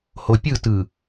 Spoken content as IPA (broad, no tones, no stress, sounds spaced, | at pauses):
h o pʲ ɯ t ɯ